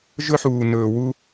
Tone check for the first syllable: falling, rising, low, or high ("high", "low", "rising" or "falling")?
high